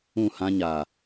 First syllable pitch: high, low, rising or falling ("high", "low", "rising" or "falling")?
falling